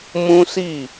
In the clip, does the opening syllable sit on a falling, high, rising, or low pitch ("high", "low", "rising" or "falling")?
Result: high